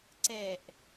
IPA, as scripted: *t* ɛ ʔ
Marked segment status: incorrect: ǀ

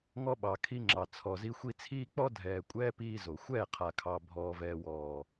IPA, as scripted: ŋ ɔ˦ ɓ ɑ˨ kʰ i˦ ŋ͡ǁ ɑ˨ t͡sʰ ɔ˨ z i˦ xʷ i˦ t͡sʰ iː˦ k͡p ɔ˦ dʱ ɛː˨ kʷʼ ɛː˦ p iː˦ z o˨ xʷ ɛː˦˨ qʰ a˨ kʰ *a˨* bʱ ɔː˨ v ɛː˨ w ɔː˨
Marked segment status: incorrect: ɑ˨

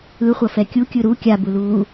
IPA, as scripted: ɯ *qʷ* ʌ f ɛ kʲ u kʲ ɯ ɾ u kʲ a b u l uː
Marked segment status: incorrect: χʷ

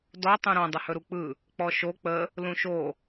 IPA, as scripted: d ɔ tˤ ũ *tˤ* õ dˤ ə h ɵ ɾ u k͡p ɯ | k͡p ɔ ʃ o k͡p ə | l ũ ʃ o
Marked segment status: incorrect: ɾ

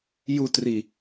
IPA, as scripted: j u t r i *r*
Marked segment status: incorrect: none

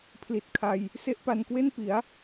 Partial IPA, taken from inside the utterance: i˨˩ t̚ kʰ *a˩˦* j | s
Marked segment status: incorrect: a˧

